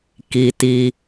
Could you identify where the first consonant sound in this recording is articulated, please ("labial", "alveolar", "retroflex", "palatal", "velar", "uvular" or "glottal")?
velar